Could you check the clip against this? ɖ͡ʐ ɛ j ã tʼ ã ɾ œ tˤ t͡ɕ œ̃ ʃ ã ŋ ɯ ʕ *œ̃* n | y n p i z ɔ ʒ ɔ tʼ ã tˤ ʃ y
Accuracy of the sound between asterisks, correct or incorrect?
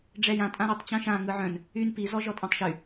correct